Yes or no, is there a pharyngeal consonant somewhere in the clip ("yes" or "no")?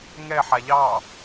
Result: yes